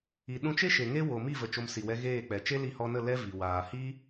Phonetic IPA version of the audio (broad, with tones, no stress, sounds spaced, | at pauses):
i˨ ɗ ũ˧ t͡ʃ e˦ ʃ e˨ ŋ e˦ w o˨ m i˦˨ v ə˨ t͡ʃ o˧ m s i˨ w ɛ˧ ɣ eː˦˨ k͡p ɛ˨ t͡ʃ e˦ l i˧ h ɔ˧ n ə˦˨ l ɛ˦ v i˨ w aː˨ h i˦